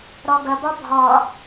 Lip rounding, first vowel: rounded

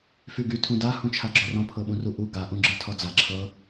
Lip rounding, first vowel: rounded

